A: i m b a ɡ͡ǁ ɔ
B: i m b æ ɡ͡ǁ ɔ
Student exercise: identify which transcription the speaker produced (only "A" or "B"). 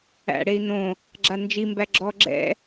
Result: B